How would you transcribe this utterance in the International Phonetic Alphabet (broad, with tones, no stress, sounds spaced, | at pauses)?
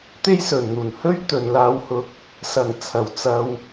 t̪ e˥ j s ɵ˨ n n̪ uː˨˩ n h ɵ˥ ɥ t̪ ɵ˨ n l aː˧ w h ʊ˧ k̚ | s ɐ˨˩ ŋ t͡sʰ ɐ˨˩ w t͡s ɐ˧ w